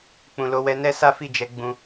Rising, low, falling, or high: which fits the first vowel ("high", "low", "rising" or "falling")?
low